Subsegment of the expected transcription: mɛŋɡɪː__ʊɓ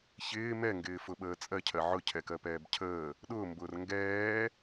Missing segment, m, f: f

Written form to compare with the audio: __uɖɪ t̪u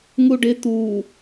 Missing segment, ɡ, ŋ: ŋ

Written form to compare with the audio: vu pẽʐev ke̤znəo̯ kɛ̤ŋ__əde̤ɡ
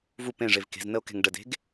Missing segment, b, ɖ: ɖ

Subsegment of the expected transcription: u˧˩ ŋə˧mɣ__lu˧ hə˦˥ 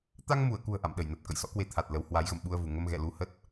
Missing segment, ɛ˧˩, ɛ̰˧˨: ɛ̰˧˨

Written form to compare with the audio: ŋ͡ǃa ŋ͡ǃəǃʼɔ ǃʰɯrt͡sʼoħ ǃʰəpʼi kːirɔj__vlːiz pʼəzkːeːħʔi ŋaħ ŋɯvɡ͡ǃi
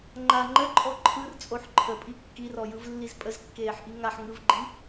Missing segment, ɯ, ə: ɯ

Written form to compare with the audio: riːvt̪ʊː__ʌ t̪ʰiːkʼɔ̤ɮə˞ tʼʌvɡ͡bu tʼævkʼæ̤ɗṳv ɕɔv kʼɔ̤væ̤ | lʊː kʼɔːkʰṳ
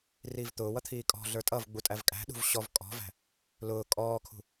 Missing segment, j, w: w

